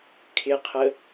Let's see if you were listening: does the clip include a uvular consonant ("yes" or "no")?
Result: yes